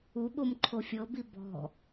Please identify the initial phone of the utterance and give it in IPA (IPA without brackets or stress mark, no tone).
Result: u